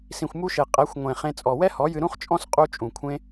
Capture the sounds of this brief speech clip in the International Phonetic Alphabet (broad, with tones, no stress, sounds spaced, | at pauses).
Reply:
s ĩ˨ xʷ m u˧ ʃ e˨ qʼ ɛ˨˦ xʷ ŋʷ ẽ˨ χ ẽ˧ t͡sʼ ɔ˨ w ɛ˦ h ɔ˨˦ j ɨ˧ ɾ ũ˦ χ t͡ʃʼ ɔ̃˦ s qʼ u˦ t͡ʃʼ ũ˨ kʷʰ ẽ˦